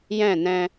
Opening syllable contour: falling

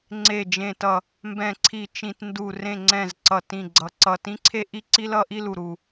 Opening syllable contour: low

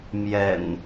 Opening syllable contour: low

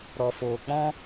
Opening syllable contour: low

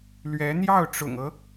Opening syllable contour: rising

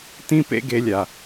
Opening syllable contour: high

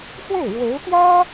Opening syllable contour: falling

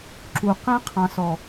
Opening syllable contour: low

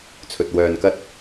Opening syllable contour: low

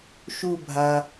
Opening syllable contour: falling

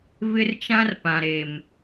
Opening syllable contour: high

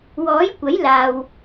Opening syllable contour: rising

